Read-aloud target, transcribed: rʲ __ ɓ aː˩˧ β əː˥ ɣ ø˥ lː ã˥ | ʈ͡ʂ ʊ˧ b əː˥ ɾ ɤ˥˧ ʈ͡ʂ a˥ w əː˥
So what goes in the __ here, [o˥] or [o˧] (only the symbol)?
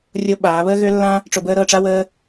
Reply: o˧